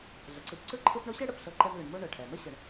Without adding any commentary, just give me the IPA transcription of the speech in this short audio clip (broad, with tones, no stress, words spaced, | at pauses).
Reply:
ɮə˩ǀɯ˨pǀɯ˦ ǃʰɯ˦pɳo˥ɕɛ˥ ɽə˩pɬɤ˦ǃɛ˦mlə˨ɳ mo˦ɳɤ˩ʈʰɛ˩ mə˥ɕə˩ɳ